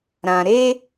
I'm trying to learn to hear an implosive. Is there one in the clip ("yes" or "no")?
no